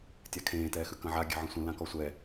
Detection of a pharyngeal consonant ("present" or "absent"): present